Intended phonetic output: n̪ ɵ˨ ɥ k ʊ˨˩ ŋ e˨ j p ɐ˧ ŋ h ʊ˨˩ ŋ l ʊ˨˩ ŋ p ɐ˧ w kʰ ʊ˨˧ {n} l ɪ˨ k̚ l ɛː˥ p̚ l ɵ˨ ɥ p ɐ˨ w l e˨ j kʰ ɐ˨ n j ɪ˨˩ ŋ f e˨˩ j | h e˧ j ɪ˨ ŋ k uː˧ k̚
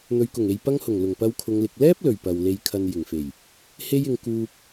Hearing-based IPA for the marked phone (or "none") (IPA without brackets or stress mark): ŋ